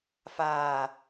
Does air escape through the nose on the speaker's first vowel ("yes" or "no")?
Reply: no